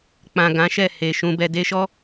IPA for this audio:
k͡p ã˨ ɡ ã˨˦ ʃ ɛ˦˨ h e˨ ʃ ũ˧ b ɛ˧ d e˧ ʃ ɔ˦

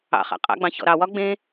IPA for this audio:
ɑ̰ χ ɑ̰ qʼ ɑ̰ ɡ͡b ɑ̃ ç ɔ̰ ɾ ɑ w ɒ ɡ͡b ẽ

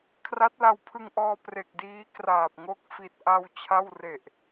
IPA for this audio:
kʰ r a˦˥ t̚ l a˧ w pʰ ɯ˧ ŋ ʔ ɔː˧ p r e˨˩ k̚ d iː˦˥ k r aː˨˩ p̚ ŋ o˦˥ k̚ f i˨˩ t̚ ʔ a˧ w t͡ɕʰ a˥˩ w r e˨˩ ʔ

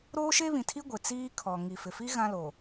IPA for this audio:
ɾ oː˦ ʃ e˦ β ĩ˨ tʰ i˦ ɡʷ ɪ˨ t͡s iː˦ kʰ ɔ˨ ŋ i˨ f ɪ˨ f i˦ ɣ ã˦ l oː˨

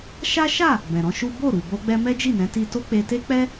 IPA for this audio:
ʃ a˦ ʃ a˦˨ | b ɛ̃˨ ɾ ɔ̃˨˦ ʃ u˦ b o˦˨ ɾ u˨ b o˧ ɡ͡b ɛ˧ m ɛ˦ d͡ʒ i˦˨ n ɛ̃˨˦ t i˧ t o˦ k͡p e˧ t e˦ k͡p ɛ˦

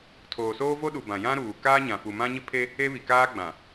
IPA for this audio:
tʰ oː˨ s oː˦ v o˦ ɗ u˨ b ã˨ j ã˦ ɾ uː˨ k aː˦ ɲ ã˨ f u˨ m ã˦ ɲ ɪ˦ pʰ e˦ | e˦ β i˨ k aː˦ ɡ͡b ã˨

